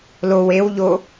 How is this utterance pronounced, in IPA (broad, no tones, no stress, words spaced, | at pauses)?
low ewʎo